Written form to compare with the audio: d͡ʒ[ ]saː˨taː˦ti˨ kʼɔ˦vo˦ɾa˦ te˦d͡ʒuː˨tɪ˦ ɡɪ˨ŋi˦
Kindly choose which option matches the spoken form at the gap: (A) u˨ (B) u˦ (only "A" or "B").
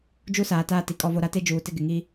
B